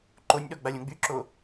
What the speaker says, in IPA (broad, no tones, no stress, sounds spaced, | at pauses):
ǃ o nʲ ɗ ɔ ɡ͡b a lʲ õ ɡ͡b y ǁ o